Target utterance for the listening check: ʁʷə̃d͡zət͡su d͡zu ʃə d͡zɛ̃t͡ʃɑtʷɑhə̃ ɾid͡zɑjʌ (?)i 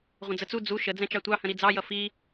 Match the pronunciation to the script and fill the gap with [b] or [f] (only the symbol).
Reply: f